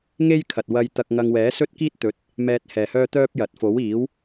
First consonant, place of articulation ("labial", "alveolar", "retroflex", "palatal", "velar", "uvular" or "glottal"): velar